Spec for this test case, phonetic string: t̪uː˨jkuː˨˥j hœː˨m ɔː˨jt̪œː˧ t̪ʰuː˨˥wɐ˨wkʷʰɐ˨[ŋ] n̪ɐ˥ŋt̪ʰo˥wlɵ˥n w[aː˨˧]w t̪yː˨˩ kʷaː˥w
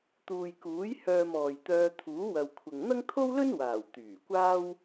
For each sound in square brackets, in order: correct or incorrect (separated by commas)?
correct, incorrect